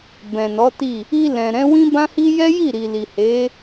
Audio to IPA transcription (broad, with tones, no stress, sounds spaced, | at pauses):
b ɛ̃˨ n ɔ˨˦ t i˦˨ | i˧ l ɛ̃˨ ɾ ɛ̃˨˦ w ĩ˦ b ã˦ h i˦ j ɛ˦ j i˦˨ ɾ i˨ l i˨ h e˨˦